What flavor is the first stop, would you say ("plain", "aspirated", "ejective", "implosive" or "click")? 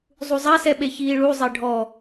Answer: implosive